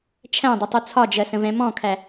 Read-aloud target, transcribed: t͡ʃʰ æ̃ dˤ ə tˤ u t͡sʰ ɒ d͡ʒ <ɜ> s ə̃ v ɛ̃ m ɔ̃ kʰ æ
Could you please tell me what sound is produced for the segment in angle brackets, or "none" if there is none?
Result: ɜ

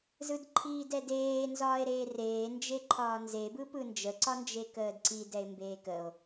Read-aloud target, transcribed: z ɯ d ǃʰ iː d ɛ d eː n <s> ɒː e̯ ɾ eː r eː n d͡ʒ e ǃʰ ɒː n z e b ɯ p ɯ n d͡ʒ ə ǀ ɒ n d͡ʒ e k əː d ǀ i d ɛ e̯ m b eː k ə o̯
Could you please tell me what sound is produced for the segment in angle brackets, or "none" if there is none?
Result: z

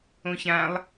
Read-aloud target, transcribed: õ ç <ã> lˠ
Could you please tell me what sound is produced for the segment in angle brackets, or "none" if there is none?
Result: ã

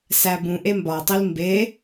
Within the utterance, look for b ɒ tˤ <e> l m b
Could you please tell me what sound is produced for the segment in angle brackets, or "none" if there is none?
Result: i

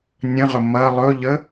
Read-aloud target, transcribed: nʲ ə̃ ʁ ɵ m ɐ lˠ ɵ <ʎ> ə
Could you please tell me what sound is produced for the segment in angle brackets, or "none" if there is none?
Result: ʎ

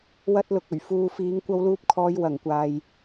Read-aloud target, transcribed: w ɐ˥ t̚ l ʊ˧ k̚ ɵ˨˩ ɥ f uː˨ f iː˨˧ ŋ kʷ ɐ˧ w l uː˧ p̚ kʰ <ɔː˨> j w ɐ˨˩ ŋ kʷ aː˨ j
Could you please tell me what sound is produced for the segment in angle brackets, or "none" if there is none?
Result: ɔː˨˧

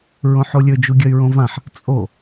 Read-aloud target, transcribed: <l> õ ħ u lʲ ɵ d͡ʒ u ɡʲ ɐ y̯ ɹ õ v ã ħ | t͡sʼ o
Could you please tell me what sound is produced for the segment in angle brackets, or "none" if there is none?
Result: ɹ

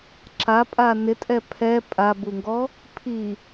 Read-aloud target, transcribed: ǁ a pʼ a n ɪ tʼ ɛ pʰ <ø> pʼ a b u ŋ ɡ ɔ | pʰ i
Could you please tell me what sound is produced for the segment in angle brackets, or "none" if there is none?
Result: ɛ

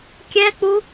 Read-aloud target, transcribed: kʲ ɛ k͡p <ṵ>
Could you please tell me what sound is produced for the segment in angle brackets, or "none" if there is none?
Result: u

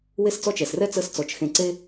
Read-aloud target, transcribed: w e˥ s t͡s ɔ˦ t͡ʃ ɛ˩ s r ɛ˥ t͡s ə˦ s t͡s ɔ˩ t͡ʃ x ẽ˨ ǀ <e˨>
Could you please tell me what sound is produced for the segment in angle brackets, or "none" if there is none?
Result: e˥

